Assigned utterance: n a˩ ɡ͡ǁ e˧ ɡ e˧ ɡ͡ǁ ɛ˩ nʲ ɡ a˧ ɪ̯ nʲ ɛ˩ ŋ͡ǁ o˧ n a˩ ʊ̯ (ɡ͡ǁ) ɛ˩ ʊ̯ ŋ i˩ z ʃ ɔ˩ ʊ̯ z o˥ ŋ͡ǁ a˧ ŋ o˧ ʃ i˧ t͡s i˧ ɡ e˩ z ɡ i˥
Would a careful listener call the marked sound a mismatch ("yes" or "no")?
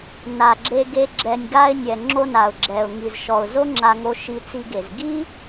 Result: no